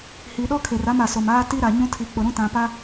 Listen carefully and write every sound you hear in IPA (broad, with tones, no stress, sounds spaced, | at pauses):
h i˨ ɗ ɔ˦ kʰ e˨ r a˦ m a˨ s o˨ m aː˦ t i˦ ɾ a˨ ɲ ũ˦ tʰ i˨ k͡p ʊ˨ ɾ ũ˦ t ã˨ p a˦